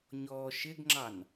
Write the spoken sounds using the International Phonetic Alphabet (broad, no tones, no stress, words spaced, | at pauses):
ɲɔːʃɪɡŋ͡ǁɑn